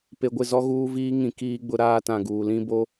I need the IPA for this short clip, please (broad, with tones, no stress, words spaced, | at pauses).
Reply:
pe˨ɡʷɪ˦˨zɔ˦ ɣuː˦viː˦ ŋĩ˨ kiː˦ɡ͡bʊ˦ ɾaː˦tã˨ɡuː˨ lĩ˦bo˦